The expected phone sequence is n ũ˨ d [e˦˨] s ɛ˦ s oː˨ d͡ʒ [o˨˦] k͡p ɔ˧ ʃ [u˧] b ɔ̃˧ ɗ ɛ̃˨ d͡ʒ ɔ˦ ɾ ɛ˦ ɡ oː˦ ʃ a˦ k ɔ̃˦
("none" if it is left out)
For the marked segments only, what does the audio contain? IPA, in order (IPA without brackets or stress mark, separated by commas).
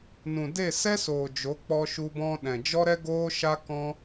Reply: e˦˨, o˨˦, u˧